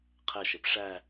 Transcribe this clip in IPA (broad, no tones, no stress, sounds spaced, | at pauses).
qʰ ɛ ʃ e p ʂ æ